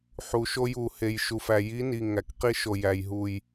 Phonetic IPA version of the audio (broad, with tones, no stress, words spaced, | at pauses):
ħu˨ʃo˦ju˨ he˨jʃu˨fæ˨ ji˨˦ni˨ ŋæ˨kqi˦ʃo˨ jæ˨jɦu˨j